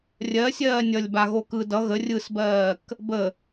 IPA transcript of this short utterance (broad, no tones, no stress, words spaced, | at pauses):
rʲɜsʲɜː nʲʌlʲbaɣo kɯ dʌ ɣə rʲɯsbɜːk | bə